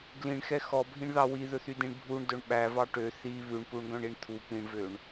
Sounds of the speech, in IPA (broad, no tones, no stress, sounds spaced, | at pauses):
ɡ l ĩ ɳ x ɛ x ɔ bʱ ĩ ɳ ð ɑ w i ð ɵ θ y d ĩ ɳ bʱ u ɳ d ɵ ɳ ɓ æ v ɑ ʈ ø θ i β ʉ ɳ p u ɳ ɡ œ̃ ɳ i ɳ t̪ʰ u p ĩ ɳ v ø ɳ